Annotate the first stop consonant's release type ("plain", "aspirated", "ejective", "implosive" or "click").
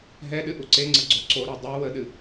implosive